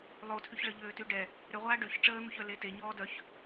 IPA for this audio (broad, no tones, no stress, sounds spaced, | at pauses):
lˠ o tʰ y ç ɭ ə ʎ øː t y ɖ ɛ | ɾ ø ʁʷ aː ɖ ø ç ʈ͡ʂ əː n̪ u ç œ l e t e ɲ ɔː d œ ç